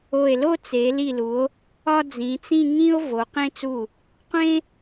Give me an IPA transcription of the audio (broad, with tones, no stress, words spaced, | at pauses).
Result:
o˧˩e̯lo˥˧ t͡se˩˧li˧˩lu˩˧o̯ | ɒ˧ d͡zĩ˩˧ t͡sĩ˥˧ŋĩ˥o̯ vo˩˧qẽ˧t͡su˧˩ | qʷẽ˥